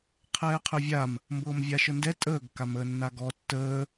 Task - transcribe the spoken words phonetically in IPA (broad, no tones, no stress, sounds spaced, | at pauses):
qʰ ɛː qʰ ø vʲ a m | m b ɤː m vʲ a ʃ ɤ n d ɛ tʼ əː ɡ k a m əː nː a ɡ ɔ tː əː